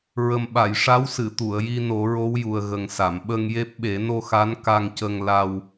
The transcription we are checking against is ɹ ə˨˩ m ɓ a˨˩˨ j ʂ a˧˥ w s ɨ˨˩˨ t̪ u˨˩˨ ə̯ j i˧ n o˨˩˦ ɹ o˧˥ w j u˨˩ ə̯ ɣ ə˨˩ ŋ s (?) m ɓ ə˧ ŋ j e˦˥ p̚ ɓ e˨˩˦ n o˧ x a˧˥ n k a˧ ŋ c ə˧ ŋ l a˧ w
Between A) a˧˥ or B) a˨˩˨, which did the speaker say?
B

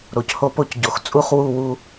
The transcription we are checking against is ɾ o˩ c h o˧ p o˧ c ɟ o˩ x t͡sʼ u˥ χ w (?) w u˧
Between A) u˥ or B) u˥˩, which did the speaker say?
B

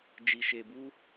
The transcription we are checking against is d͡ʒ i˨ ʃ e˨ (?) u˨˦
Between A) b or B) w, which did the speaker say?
A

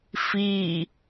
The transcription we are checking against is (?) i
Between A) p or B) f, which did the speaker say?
B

